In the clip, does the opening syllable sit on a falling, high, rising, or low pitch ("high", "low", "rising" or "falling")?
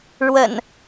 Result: low